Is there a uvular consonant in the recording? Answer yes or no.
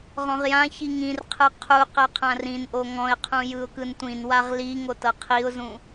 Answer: yes